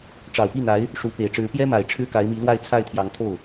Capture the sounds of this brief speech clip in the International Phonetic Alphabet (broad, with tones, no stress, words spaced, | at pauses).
ʈ͡ʂɑ˨˩ʊ̯pi˥˩n̪a˧˥ɪ̯ | ʂu˧˥ pe˨˩ɪ̯ʈ͡ʂɻ̩˧˥ pjɛ˥ma˨˩ɪ̯ ʈ͡ʂʰɻ̩˥ka˧˥ɪ̯mi˧˥lwa˥˧ɪ̯ t͡sʰa˥˩ɪ̯t̪ʰjɑ˧˥ŋt̪ʰo˥˩ʊ̯